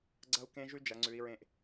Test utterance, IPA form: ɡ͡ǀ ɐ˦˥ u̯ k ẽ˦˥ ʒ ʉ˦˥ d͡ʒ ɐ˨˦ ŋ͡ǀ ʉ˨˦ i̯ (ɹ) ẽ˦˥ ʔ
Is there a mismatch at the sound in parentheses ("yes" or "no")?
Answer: no